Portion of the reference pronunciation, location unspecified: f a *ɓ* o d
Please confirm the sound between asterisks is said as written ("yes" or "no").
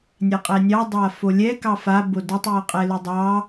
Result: no